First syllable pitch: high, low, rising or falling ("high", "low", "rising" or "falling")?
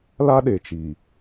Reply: high